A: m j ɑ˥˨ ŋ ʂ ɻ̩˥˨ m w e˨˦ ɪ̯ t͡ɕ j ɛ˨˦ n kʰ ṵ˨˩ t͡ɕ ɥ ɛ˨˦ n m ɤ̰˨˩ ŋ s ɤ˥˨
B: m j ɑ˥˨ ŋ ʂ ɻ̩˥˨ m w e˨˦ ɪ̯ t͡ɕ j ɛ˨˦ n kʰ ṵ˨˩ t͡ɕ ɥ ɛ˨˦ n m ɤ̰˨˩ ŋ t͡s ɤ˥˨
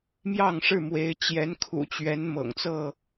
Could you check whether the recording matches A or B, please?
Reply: B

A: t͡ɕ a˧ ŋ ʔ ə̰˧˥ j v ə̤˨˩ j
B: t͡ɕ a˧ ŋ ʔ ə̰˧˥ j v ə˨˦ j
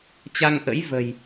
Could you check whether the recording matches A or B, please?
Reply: A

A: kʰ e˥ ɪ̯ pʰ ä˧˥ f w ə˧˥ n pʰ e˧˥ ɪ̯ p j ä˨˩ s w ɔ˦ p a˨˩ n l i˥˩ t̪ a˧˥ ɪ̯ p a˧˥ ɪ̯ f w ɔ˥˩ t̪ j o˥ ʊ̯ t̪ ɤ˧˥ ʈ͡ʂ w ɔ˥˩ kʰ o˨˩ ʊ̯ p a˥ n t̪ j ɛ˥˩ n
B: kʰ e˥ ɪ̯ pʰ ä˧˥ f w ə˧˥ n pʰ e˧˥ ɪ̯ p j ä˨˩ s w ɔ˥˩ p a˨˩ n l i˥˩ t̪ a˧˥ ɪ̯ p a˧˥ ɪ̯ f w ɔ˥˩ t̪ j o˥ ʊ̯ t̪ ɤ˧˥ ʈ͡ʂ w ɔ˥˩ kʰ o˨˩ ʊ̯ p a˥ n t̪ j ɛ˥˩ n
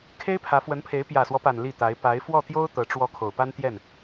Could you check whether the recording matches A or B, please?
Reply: A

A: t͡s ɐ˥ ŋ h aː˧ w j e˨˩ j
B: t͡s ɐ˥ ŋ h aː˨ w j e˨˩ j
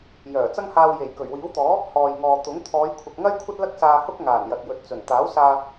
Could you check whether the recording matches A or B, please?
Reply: A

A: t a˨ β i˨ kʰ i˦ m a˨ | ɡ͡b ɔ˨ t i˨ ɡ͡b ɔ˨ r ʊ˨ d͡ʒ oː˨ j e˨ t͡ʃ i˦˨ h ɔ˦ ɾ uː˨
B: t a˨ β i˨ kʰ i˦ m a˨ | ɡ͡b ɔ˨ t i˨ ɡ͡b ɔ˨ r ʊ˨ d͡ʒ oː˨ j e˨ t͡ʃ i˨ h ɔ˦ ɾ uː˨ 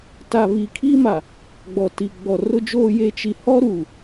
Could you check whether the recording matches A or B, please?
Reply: B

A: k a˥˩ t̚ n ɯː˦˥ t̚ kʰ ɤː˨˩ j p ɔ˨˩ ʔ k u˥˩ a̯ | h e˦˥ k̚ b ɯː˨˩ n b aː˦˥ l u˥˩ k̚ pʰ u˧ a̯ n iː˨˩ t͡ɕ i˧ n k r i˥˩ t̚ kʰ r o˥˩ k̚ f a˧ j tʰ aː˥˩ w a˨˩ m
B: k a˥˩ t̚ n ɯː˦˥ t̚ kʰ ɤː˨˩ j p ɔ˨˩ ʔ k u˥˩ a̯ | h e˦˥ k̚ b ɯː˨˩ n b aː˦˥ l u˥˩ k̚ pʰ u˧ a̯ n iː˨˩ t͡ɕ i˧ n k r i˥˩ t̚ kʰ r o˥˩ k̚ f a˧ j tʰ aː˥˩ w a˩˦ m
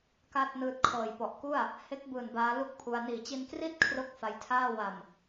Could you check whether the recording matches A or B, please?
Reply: A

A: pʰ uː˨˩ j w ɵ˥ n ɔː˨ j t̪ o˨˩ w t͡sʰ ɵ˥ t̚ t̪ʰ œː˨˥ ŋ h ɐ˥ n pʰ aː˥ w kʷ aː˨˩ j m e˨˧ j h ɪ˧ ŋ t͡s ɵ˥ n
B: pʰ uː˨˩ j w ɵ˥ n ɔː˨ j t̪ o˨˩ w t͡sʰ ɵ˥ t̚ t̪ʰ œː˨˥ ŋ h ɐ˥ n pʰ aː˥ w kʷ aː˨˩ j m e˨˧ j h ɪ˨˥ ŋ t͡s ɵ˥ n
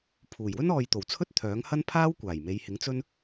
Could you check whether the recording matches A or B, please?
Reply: B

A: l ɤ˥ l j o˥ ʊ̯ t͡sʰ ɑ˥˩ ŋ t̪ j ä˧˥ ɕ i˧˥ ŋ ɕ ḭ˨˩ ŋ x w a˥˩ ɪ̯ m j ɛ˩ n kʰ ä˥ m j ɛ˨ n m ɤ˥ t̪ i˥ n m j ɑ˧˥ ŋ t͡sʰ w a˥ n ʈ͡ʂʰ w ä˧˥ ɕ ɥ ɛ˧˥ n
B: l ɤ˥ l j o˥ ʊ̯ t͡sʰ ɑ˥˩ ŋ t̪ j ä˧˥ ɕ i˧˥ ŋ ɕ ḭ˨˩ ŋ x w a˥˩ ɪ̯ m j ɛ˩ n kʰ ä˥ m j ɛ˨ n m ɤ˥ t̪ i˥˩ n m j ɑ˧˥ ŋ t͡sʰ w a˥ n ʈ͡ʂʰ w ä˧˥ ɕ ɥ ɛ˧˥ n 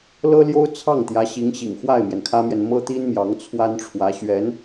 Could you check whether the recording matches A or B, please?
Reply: A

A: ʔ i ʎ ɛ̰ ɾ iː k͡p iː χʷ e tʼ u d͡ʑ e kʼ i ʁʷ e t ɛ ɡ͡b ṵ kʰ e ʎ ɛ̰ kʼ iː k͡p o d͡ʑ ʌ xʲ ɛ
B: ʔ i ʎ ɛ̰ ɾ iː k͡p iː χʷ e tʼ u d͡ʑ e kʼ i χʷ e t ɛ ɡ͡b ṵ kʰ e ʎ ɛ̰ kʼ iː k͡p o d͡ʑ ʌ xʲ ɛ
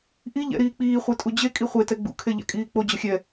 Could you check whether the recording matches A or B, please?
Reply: B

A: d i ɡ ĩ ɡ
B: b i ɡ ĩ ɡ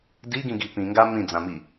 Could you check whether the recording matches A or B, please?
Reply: A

